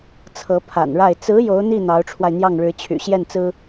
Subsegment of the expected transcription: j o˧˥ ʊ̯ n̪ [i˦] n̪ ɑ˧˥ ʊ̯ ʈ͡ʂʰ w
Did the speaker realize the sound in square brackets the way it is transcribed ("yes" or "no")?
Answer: no